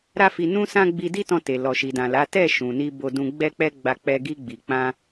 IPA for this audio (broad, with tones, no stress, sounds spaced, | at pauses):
ɾ a˦ f i˧ n ũ˦ s ã˦ ɡ͡b i˧ d i˦ t ɔ̃˧ t e˨ l ɔ˨ ʃ i˨ d ã˨ l a˨˦ t ɛ˦˨ ʃ ũ˨ n i˧ b o˧ d ũ˧ ɡ͡b ɛ˦ k͡p ɛ˦ ɡ͡b a˧ k͡p ɛ˧ ɡ i˧ ɡ͡b i˨ k͡p ã˧